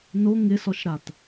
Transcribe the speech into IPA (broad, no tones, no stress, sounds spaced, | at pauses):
n o ŋ ɪ s ɔ ʃ ɾ a t